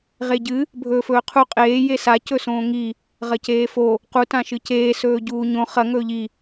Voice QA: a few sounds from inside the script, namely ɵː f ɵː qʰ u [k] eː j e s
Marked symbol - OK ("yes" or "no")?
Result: no